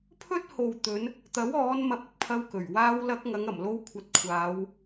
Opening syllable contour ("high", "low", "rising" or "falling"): high